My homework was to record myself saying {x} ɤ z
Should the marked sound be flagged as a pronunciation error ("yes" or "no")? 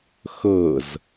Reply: no